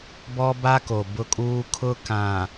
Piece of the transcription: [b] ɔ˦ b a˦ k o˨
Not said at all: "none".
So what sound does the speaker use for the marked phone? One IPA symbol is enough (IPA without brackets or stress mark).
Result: b